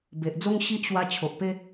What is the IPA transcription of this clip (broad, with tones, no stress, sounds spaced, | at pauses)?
b e˨ ʔ d͡z o˦ ŋ ɕ i˦ ʔ ɕ w a˧ t͡ɕʰ o˨ ʔ p e˦